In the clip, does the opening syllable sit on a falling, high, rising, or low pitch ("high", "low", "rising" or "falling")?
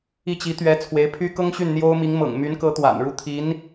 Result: falling